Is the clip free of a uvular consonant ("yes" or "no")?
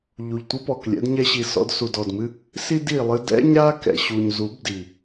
yes